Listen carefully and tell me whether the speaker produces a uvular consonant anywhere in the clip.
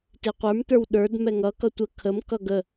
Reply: yes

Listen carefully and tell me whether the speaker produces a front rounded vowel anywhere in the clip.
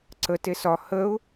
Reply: no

